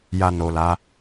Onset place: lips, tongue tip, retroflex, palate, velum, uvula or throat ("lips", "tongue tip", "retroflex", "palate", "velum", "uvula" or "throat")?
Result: palate